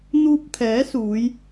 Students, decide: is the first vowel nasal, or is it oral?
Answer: oral